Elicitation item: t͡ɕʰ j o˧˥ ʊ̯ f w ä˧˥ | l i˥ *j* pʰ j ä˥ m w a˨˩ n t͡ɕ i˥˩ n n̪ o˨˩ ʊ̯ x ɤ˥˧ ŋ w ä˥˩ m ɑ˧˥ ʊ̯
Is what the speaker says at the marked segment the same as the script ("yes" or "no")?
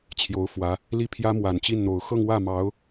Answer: no